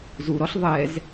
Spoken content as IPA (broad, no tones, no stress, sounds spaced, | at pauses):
z u ɾ ɔ ɬ ðˤ ɛ z